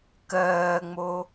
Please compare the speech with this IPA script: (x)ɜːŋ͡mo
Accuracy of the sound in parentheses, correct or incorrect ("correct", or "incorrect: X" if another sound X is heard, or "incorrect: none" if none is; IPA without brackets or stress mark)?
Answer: incorrect: k